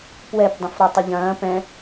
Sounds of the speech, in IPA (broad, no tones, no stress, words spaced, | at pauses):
pwɛpdˤə̃fɾɔ tˤəʎɐ̃ː pɛ̃